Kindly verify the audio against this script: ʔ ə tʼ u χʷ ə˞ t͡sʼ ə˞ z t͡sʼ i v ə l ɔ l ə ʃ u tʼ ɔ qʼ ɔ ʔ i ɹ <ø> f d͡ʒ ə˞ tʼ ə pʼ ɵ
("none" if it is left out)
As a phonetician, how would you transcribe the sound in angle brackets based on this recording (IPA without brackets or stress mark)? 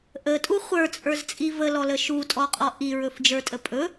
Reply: ɵ